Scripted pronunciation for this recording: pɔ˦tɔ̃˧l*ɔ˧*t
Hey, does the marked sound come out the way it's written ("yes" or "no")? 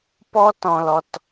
yes